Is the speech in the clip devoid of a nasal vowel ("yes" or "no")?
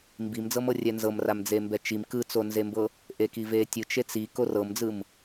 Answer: yes